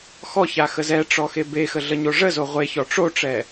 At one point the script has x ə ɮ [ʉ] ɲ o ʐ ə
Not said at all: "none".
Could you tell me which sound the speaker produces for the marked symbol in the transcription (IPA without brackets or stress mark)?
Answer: ə